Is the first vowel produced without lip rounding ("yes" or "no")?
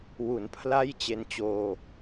no